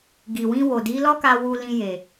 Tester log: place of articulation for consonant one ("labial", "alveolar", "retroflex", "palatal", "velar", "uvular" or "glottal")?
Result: velar